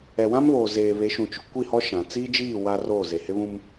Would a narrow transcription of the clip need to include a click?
no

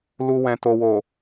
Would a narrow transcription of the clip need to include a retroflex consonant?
no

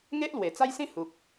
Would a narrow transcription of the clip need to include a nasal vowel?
yes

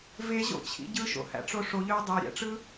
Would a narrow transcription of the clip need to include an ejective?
no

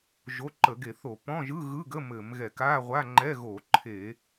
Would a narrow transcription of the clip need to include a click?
yes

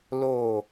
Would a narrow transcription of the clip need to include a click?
no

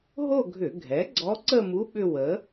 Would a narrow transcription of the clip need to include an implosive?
yes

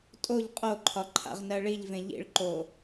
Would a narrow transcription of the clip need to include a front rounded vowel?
no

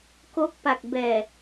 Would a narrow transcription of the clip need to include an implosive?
no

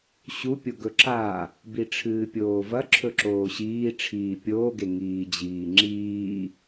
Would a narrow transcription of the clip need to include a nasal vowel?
no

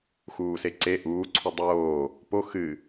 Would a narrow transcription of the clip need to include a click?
yes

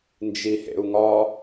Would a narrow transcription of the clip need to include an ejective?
no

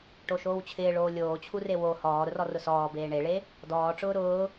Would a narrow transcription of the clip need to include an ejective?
no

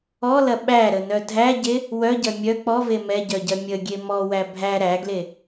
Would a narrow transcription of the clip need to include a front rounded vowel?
yes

